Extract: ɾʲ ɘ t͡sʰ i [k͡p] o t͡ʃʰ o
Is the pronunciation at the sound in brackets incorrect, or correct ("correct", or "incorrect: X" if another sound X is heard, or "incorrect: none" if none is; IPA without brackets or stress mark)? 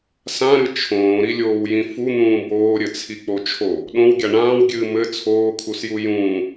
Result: correct